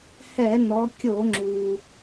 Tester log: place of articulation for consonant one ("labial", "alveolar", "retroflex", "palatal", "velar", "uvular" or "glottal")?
glottal